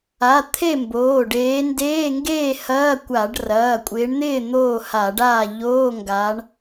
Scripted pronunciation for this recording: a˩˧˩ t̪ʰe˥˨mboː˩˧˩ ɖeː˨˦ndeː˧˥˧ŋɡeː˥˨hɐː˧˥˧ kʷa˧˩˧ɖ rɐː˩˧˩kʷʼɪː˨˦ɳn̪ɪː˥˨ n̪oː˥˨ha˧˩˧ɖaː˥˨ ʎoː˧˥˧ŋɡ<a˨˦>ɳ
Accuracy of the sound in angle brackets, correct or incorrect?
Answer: correct